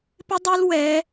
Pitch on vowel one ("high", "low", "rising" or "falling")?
high